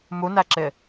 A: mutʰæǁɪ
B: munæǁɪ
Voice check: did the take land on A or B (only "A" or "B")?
B